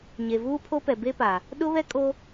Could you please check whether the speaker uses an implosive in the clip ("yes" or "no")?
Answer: yes